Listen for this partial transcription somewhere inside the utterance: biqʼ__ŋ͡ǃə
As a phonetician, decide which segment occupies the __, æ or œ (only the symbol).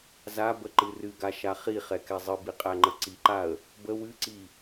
æ